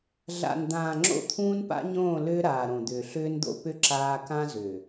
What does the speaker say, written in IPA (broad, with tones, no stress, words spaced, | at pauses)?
ɮa̰˨nd̪ãː˨ ŋ͡ǁo̰˦˨t̪ʰũː˦n pa̰˦ɲõː˦˨ lʏː˦ɾaː˨ɾõ˨d̪ʏː˨ ɬʏː˦nd̪o̰˦pʏ˦ ǁaː˦ kã˦zʏː˨